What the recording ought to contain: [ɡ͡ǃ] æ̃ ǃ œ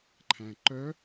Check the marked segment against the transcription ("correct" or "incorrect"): incorrect